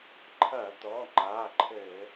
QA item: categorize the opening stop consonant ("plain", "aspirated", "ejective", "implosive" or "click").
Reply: click